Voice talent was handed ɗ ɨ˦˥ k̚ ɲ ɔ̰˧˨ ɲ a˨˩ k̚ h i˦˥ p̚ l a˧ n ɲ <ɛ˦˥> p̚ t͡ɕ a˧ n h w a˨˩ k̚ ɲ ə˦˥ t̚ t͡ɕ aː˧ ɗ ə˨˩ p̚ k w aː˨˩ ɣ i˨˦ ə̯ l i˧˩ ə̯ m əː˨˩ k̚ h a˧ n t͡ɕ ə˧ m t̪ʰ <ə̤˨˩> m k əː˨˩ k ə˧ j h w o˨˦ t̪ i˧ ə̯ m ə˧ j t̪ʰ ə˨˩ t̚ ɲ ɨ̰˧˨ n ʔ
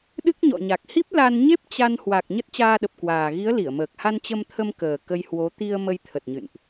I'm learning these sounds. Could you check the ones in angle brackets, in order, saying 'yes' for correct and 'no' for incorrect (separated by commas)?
no, no